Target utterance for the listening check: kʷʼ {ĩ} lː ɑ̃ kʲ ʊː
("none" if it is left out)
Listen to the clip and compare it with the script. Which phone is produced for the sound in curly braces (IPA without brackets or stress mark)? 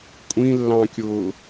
ĩ